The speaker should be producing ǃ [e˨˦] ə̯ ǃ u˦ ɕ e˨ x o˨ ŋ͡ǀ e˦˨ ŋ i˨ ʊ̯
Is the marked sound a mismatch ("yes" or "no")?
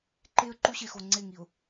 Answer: yes